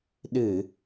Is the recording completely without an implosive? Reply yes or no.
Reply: no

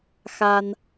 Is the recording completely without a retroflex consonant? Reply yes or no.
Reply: yes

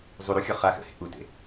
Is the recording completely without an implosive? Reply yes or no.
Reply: yes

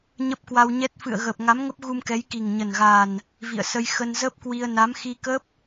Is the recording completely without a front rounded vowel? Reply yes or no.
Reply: yes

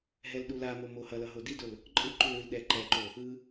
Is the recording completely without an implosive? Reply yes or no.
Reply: no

